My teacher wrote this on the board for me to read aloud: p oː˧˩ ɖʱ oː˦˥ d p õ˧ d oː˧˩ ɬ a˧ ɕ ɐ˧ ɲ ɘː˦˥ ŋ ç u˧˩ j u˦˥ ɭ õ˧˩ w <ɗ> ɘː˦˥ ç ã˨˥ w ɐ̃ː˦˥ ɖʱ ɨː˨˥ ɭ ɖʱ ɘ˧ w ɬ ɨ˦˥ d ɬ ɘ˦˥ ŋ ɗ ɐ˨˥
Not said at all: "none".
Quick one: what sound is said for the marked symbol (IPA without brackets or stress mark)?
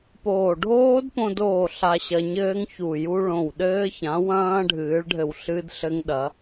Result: ɗ